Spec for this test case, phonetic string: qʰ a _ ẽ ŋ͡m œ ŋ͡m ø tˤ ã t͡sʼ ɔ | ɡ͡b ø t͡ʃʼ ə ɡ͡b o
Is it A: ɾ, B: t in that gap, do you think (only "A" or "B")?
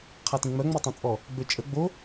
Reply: B